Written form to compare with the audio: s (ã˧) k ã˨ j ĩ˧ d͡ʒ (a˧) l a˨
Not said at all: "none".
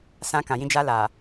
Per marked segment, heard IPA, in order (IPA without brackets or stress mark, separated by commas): ã˧, a˧